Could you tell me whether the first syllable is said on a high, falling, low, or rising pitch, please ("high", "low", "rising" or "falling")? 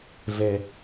low